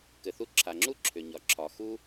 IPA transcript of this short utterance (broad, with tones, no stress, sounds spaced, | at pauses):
k ɘ˩ θ u˧ ǁʰ a˩ ŋ͡ǁ u˥ ǁʰ ʏ˩ ɲ ɒ˩ ǁʰ ɒ˩ x u˥